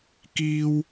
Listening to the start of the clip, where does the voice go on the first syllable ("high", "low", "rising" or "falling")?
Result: high